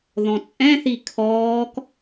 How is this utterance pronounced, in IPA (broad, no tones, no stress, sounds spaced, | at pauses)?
ð ɔ̃ t͡sʼ ɛ̃ θ i kʰ ɔː k